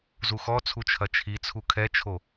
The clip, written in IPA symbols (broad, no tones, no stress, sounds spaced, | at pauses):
z u x ɔ t͡sʰ u t͡ʃʰ ɐ t͡ʃʰ i t͡sʰ u kʰ ɛ t͡ʃʰ o